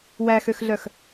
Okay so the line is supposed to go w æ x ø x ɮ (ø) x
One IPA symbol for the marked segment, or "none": œ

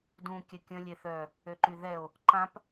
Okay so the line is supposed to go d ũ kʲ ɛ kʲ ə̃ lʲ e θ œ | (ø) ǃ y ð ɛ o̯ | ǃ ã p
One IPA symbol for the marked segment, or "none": ø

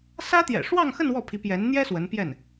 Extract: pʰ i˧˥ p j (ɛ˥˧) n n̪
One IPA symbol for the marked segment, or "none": ɛ˧˥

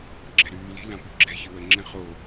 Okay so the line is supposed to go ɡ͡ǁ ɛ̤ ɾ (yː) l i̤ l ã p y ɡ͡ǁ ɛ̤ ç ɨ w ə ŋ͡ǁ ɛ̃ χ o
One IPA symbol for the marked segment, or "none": yː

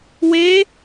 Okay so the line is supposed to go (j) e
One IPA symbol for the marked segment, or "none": w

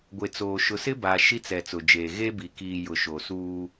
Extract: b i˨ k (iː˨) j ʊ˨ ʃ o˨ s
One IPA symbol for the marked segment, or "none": iː˨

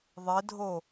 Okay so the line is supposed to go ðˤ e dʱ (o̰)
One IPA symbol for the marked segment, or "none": o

